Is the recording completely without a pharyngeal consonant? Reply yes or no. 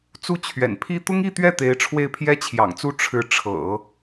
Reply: yes